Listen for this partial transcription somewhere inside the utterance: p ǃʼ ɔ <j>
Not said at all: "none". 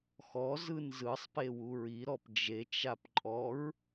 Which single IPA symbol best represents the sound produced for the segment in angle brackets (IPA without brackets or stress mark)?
ɹ